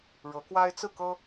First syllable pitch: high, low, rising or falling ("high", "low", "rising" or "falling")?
rising